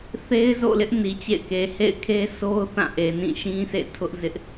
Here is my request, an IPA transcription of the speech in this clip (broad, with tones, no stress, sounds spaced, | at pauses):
θ e˦ ɪ̯ z o̰˦˨ l ɪ˦ ʔ n i˨ t͡ɕ ḛ˦˨ ɪ̯ k e˨ h ḛ˦˨ ɪ̯ kʰ e˦ sʰ o˦ ʊ̯ θ ã˦˨ ʔ e˨ n ĩ˦˨ ʃ ĩ˦ s ḛ˦˨ tʰ ʊ˦ ʔ z ɪ˦ ʔ